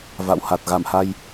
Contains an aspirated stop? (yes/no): no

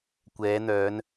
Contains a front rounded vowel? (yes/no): yes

